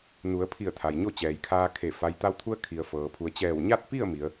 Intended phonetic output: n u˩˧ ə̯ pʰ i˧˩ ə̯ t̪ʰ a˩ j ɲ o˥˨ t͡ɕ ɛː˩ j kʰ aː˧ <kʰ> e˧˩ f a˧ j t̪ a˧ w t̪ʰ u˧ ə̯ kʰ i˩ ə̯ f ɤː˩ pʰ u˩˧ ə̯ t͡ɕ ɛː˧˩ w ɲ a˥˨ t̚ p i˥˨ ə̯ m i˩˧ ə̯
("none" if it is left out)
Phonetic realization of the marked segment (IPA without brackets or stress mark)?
kʰ